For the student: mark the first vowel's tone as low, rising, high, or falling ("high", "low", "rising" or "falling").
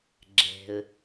low